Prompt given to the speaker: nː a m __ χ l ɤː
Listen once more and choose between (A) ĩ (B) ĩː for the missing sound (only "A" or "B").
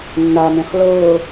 A